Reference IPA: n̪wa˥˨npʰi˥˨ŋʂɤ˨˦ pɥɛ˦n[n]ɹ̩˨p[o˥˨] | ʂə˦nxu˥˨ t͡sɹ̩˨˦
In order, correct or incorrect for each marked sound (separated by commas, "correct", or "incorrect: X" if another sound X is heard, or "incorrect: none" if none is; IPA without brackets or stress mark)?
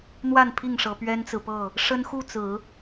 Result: incorrect: t͡s, incorrect: ɤ˥˨